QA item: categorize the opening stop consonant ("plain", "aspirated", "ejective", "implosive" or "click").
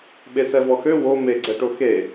implosive